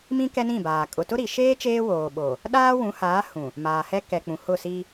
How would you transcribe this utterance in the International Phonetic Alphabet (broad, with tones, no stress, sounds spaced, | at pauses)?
m ĩ˦ k ɛ˦ n ĩ˦˨ b aː˨ kʼ ʊ˨ t ʊ˦ ɾ i˨ ʃ eː˦ t͡ʃ eː˦ w oː˨ ɓ o˨ | ɗ aː˦ w ũ˨˦ h aː˨˦ h ũ˨ | m aː˨ h ɛ˦ k ɛ˨ k͡p ũ˨ h ʊ˦˨ s i˦